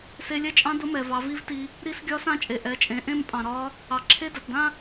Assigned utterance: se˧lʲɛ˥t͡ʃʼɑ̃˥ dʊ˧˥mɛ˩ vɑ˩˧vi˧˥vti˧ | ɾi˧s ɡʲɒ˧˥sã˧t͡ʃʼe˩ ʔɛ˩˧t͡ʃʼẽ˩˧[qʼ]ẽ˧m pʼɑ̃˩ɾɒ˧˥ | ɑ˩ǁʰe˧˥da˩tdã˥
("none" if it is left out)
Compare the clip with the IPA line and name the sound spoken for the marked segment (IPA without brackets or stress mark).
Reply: ʔ